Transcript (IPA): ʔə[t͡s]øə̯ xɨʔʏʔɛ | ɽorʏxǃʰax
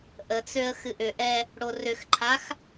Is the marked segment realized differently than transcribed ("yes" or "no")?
no